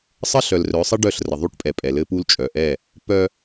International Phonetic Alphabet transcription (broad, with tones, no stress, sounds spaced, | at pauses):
sˤ ə˦ ɬ œ˨ l r œ˨˦ sˤ ə˦ ɖ œ˦˨ ɬ r ə˨ ðˤ u˦ ʈ pʼ ɛ˨ pʼ ɛ˨ l ɘ˦ p u˦ l t͡ʃʼ œ˨ ʔ ɛ˦˨ | p œ˦